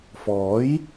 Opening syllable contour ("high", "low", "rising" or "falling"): rising